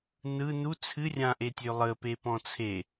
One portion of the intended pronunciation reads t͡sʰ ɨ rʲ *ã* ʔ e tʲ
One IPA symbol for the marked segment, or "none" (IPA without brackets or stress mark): ã